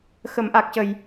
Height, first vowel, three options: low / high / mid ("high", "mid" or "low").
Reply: mid